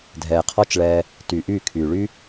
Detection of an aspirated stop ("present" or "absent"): present